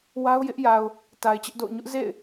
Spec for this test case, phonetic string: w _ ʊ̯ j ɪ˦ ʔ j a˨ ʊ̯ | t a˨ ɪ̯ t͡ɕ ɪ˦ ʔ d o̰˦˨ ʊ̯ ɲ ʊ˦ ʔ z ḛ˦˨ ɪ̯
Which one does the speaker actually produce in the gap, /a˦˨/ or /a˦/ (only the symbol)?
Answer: a˦